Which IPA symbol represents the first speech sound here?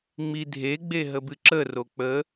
ŋ͡m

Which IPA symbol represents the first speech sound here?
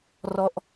r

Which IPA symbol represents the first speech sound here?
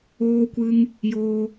oː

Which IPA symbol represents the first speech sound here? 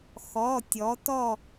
x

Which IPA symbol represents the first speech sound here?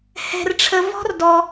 h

